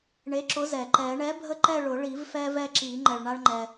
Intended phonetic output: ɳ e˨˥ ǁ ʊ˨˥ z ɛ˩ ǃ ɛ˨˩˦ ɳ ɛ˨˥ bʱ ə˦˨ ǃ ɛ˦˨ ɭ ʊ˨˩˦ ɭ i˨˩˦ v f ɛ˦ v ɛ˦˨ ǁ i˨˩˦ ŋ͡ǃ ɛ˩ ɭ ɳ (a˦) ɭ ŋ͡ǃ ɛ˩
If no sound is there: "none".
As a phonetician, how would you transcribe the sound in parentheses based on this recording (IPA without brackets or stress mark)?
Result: a˦